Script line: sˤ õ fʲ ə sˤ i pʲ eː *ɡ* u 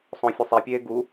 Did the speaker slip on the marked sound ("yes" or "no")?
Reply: no